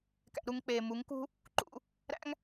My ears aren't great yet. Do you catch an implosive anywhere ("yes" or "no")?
no